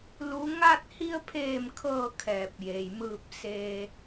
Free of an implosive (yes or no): yes